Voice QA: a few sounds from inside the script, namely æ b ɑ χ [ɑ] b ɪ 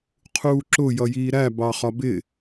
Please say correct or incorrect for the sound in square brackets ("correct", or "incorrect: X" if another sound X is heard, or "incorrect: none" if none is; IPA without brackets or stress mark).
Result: incorrect: ɒ